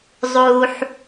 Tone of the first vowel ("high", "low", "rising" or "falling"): low